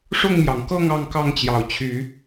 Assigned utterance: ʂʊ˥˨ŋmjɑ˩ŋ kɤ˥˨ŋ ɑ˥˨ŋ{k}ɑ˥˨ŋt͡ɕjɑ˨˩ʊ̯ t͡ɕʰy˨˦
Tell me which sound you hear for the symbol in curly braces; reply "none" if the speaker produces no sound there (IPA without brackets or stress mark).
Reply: k